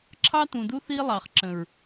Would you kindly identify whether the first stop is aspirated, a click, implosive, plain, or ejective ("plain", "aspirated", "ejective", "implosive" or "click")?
click